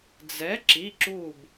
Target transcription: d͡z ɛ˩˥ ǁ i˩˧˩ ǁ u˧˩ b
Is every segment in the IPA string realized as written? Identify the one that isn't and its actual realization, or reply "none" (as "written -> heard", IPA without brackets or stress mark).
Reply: none